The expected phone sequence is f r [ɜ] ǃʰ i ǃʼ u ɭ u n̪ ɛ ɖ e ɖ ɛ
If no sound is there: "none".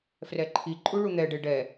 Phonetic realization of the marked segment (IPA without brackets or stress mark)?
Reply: ɛ